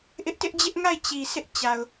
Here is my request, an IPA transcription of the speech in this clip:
ʔ ɪ˦ ʔ t ɪ˦ ʔ d͡ʑ ɪ˦ ʔ ŋ a˦˨ ɪ̯ t͡ɕ i˨ sʰ ɪ˦ ʔ t͡ɕ a˨ ʊ̯

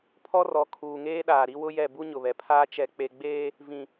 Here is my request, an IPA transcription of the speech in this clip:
pʰ ɔ˦ r ɔ˨˦ kʰ uː˨ ŋ eː˦ ɗ aː˨ ɾ i˦ w ʊ˦ j ɛ˦˨ b u˦ ɲ ʊ˨ β ɛ˨ pʰ aː˦ t͡ʃ ɛ˦ k͡p e˦ ɡ͡b eː˦ | v ĩ˨

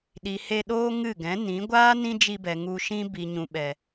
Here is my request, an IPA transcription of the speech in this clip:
ɗ i˨ h e˧ ɗ oː˦ ŋ ɨ˦˨ ɡ ɛ̃˨˦ n ĩ˨˦ ɡʷ aː˦ n ĩ˦ d͡ʒ i˧ b ɛ˨ ŋ u˧ ʃ ĩ˦ b i˨ ɲ ũ˨ ɓ ɛ˨

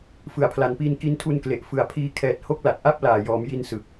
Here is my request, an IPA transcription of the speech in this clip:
f ɯ˩˦ a̯ pʰ l a˩˦ n p iː˧ n k i˧ n tʰ u˧ n k l e˨˩ ʔ f ɯ˨˩ a̯ pʰ iː˧ kʰ ɛː˨˩ t̚ h o˦˥ k̚ l a˨˩ t̚ ʔ a˥˩ p̚ l aː˨˩ j ɔː˩˦ m j i˧ n s ɯ˨˩ k̚

